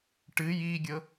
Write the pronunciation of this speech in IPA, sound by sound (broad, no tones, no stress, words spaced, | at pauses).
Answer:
ʈɨj iɡʲɤ